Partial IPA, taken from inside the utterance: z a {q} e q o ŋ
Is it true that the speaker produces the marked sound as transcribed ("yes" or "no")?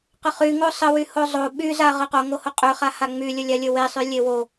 no